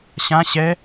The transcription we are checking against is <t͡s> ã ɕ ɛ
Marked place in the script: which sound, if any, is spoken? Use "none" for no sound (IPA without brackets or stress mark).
ɕ